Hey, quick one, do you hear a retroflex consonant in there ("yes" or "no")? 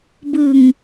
no